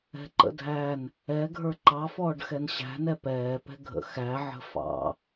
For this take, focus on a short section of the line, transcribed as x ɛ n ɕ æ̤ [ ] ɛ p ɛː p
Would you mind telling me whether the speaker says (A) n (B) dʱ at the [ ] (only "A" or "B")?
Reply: A